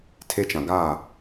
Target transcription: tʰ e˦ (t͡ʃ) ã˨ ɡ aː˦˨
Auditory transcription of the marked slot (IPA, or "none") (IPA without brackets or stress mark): t͡ʃ